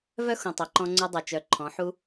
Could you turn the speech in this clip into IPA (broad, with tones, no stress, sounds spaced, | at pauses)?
v œ˦ x ũ˨ tˤ œ˨ ǃ ɔ̃˧ ŋ͡ǀ u˧ dˤ o˨ t͡ʃ œ˨˦ ǃʰ ɔ̃˨˦ ħ u˦